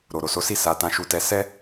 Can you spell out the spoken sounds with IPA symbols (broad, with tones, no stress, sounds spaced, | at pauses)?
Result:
ɾ o˨ ɾ o˨ s o˨˦ s i˦˨ s a˨˦ t ã˧ ʃ u˧ t ɛ˧ s ɛ˦